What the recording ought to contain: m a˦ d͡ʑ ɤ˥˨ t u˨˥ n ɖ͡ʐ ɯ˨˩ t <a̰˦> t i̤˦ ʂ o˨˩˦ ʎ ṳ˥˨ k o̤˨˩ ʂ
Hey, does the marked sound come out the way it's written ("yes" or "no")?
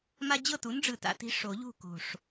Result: yes